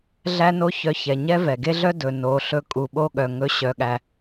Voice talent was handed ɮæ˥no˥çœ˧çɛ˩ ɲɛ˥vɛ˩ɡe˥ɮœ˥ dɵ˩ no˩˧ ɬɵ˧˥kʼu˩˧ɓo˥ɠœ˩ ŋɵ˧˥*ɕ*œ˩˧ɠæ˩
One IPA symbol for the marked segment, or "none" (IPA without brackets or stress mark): ɕ